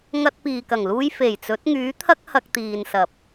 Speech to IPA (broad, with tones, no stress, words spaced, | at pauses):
ŋɐ˧t̚piː˨kɐ˨˩ŋluː˧j fe˨˩jt͡sɵ˨˥t̚ ŋyː˨˥t̪ʰɐ˥k̚ hɐ˧k̚t̪iː˨nsɐ˨p̚